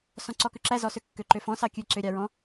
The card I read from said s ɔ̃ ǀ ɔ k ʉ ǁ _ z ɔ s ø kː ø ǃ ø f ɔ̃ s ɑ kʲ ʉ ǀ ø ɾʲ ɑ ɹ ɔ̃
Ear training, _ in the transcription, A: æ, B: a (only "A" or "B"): A